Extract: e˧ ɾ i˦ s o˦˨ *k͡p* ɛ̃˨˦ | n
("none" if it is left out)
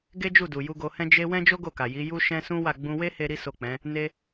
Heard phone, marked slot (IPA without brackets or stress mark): k͡p